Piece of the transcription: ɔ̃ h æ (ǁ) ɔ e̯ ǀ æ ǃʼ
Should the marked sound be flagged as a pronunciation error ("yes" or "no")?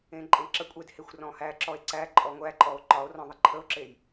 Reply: no